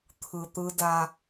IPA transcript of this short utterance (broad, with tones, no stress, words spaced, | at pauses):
t̪ʰɯ˨t̪ɯ˦da˦